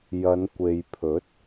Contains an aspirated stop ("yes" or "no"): yes